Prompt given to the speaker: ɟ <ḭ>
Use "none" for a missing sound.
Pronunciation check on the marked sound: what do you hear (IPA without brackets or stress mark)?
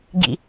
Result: ḭ